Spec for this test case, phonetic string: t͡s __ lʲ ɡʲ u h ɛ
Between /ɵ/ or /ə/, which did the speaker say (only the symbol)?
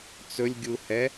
ɵ